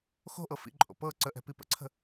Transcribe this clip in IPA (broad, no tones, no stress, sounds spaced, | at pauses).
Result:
x o̤ ʔ ɤ f ḭ ǃʼ o̰ p ɤ ǀ ə ʔ ɛ̤ p i p ə̰ ǀʰ ə̤